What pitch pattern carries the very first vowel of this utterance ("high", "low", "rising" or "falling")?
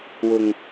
low